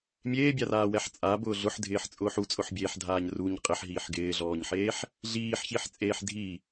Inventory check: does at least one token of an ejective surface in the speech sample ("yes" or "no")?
yes